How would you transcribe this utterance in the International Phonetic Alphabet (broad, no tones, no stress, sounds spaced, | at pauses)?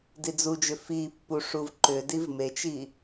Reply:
d i d͡z u d͡ʒ ʏ f i pː u ʂ u v ǃ ʏ d i v m e t͡ʃ i